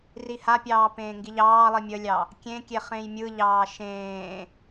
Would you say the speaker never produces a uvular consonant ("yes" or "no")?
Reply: no